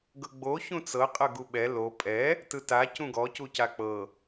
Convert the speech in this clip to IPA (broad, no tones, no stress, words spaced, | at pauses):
ɡɤɡ͡bo çũt͡sɤ qʼɤɡuɓɛ lo pʼɛ | tɯta cũɡɔ cucak͡pɤ